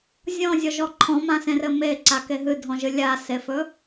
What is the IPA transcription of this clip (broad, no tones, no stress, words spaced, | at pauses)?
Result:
zʲɔ̃zʲɔʒɔ ǃʰɔ̃mãsẽrɘ meǀake ɦɨdʱɔ̃ʒɨ lʲasefɵ